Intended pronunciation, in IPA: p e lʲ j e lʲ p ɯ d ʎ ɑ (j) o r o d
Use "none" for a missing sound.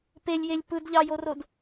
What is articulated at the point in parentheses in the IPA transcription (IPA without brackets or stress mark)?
j